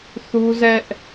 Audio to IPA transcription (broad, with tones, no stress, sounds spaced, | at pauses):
θ u˦ z ɛ˦ ʔ